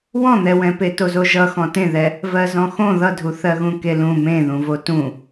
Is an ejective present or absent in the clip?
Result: absent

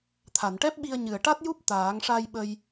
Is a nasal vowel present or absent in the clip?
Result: absent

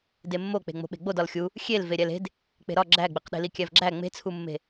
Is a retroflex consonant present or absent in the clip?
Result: absent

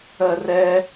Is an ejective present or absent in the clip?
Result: absent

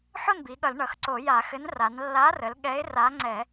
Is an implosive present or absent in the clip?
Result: present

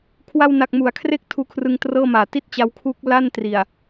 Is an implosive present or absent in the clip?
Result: absent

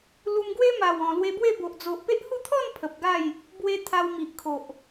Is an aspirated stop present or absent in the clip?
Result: present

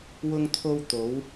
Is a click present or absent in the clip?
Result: absent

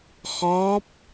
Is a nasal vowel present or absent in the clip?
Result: absent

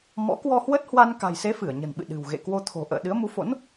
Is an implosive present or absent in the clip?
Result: present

